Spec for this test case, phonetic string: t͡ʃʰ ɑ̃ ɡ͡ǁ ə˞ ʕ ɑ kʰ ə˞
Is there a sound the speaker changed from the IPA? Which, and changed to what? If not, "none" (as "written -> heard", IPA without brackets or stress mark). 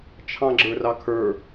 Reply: ʕ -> r